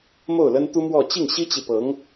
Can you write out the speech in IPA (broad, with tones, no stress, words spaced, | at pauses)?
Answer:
mo˥˩ʊ̯lə˥nt̪u˥mwɔ˥˧ t͡ɕi˥˩ŋɕi˥t͡ɕi˨pɤ˧˥ŋ